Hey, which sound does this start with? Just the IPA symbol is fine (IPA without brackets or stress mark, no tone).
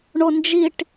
ɳ